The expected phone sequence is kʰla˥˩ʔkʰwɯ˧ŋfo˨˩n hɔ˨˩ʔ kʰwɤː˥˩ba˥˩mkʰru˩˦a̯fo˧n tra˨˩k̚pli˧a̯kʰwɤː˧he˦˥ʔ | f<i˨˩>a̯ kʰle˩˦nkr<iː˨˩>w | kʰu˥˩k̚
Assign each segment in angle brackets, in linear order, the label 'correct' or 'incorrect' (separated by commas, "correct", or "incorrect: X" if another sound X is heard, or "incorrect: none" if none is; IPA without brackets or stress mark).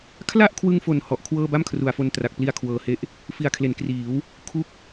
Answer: correct, incorrect: iː˩˦